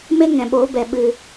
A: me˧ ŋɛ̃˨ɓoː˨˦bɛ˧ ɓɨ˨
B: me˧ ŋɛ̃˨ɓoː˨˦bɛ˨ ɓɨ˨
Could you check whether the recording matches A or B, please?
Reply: B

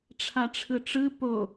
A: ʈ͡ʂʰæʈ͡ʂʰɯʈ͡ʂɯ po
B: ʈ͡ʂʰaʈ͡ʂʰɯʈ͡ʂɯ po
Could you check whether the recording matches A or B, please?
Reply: B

